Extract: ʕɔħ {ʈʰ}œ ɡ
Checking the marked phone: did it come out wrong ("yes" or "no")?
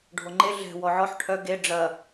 no